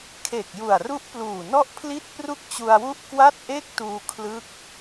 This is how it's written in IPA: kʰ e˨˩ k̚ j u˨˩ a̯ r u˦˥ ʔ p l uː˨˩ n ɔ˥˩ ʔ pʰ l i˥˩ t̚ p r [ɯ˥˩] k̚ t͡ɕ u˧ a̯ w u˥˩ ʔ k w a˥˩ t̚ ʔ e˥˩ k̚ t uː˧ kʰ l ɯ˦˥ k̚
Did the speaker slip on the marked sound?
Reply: yes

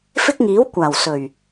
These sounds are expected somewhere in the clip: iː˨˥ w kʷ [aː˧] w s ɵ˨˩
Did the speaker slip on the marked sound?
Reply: yes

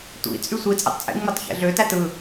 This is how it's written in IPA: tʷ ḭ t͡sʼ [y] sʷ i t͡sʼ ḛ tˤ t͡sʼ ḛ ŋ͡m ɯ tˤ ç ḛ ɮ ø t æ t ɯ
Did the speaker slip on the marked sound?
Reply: no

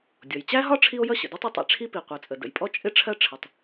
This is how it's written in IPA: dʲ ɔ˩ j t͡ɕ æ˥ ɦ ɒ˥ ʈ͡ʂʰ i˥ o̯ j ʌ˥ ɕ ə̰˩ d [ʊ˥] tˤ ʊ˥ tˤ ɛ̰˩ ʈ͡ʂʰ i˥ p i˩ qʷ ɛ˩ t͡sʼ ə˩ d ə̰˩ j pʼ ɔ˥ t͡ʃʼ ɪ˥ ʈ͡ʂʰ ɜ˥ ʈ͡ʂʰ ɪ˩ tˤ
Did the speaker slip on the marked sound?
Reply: yes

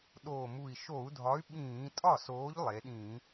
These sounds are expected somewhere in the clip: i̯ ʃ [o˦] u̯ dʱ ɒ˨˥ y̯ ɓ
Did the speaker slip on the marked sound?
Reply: yes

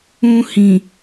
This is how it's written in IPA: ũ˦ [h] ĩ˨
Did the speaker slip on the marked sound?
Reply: no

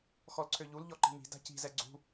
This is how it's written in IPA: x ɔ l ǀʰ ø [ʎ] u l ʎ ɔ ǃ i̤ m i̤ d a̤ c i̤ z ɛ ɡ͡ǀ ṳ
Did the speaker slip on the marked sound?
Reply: no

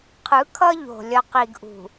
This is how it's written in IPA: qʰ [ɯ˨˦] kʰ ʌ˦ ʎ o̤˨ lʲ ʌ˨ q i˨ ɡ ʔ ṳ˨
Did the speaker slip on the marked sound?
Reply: no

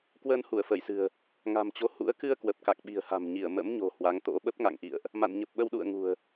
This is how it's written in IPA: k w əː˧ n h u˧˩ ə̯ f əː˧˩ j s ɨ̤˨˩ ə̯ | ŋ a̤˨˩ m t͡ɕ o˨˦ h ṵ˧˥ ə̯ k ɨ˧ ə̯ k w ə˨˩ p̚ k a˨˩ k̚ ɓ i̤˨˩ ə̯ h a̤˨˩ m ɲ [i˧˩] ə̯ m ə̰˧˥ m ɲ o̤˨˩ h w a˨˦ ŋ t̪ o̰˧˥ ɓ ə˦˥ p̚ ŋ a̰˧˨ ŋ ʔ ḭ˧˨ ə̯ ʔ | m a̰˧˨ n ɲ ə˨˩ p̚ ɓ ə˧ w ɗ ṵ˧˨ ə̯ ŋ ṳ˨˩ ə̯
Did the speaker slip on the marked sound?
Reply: no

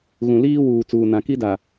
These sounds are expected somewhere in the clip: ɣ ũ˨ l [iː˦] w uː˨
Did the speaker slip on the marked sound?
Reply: no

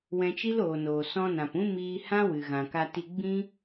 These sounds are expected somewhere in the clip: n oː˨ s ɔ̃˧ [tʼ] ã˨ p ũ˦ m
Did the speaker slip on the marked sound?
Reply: yes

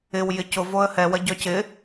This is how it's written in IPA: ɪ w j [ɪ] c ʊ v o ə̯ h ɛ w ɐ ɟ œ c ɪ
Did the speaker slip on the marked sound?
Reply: no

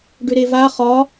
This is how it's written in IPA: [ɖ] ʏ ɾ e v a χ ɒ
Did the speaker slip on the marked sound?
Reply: no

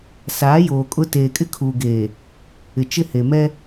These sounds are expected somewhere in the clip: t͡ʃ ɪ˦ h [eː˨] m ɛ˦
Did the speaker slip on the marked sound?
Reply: yes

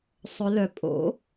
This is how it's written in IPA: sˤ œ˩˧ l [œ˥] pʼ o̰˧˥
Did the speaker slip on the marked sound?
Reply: yes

